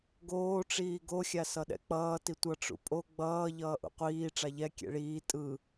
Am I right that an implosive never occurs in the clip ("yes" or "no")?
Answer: no